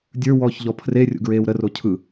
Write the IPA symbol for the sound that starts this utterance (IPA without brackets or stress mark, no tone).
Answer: dʲ